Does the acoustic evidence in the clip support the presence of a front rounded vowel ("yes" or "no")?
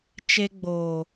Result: no